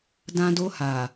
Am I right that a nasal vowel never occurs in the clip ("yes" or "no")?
no